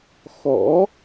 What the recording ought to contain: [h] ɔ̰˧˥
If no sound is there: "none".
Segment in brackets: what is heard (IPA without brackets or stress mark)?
x